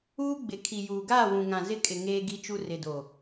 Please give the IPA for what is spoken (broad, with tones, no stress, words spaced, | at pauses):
uː˦ ɡ͡bɪ˨ kʰi˨juː˨ ɡaː˦˨wũ˨ŋã˨ zɪ˦kʼɪ˨ ŋeː˦ɡi˦t͡ʃu˦ rɪ˨do˨